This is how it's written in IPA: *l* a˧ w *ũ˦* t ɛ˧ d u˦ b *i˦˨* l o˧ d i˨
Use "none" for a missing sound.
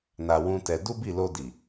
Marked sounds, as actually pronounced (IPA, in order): n, ũ˦, i˦˨

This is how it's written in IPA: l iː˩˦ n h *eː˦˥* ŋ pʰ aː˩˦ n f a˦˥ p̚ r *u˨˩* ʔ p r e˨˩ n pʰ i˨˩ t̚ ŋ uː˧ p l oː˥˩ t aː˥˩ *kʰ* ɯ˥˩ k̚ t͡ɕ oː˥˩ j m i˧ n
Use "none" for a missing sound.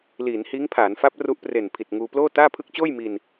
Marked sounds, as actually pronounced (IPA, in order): iː˦˥, u˦˥, pʰ

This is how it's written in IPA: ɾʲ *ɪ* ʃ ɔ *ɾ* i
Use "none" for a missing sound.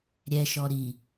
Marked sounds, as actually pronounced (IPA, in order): ɛ, ɾ

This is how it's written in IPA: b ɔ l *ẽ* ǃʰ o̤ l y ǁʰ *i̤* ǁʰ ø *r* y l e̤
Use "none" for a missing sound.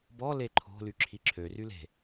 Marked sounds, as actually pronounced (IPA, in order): e, i, r

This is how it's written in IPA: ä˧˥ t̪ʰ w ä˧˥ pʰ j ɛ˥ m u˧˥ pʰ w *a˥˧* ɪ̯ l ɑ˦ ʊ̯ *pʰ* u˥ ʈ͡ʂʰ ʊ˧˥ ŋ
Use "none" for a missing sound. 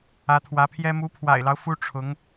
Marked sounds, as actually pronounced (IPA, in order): a̰˨˩, f

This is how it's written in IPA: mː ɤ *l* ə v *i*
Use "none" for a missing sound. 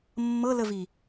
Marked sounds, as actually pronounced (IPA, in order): l, i

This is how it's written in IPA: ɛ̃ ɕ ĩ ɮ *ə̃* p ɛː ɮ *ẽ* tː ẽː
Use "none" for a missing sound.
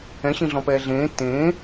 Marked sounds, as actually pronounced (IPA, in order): ɔ̃, ẽː

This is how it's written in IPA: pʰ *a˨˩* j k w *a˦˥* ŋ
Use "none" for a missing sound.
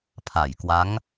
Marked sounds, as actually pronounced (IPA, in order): a˨˩, a˦˥

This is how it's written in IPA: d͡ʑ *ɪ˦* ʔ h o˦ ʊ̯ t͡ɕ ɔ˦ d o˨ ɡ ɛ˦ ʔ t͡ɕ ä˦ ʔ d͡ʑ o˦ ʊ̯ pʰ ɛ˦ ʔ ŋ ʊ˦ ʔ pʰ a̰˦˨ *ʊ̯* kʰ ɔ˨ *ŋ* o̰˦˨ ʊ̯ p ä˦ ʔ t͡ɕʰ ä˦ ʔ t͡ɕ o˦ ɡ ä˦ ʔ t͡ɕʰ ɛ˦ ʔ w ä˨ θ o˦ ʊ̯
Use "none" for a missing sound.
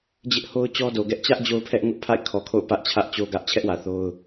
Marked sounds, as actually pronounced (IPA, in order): ɪ˦, ɪ̯, kʰ

